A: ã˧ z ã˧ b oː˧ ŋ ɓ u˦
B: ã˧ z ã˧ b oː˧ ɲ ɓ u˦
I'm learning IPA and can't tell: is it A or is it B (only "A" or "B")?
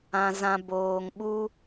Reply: A